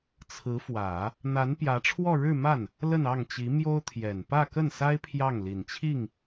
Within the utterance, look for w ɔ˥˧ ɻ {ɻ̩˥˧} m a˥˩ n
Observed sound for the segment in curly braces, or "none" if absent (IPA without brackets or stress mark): ɻ̩˥˧